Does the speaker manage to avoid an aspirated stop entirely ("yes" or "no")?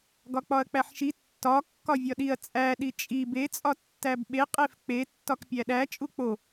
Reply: yes